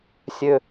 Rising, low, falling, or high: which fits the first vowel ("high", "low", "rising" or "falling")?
low